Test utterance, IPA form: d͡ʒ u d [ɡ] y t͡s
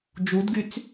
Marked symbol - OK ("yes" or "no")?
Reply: yes